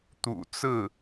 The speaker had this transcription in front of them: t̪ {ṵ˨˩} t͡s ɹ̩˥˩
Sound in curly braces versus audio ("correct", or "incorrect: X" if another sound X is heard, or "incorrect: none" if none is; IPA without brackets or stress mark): correct